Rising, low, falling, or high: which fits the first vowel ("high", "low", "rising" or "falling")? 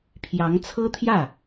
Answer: rising